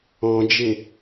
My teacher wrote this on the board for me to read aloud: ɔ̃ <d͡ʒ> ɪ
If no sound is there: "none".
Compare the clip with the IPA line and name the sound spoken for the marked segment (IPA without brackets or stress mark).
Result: d͡ʒ